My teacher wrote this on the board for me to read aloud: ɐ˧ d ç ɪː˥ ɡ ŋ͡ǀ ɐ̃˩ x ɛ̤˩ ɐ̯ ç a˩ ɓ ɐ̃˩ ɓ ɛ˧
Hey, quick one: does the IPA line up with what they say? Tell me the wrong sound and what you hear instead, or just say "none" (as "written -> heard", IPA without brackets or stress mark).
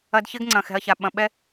none